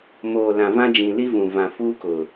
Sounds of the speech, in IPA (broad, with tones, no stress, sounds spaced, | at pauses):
m oː˨ l ã˨ v ã˦ d͡ʒ ĩ˨ l i˦ v ũ˨ v ã˨ f uː˦ k ʊ˨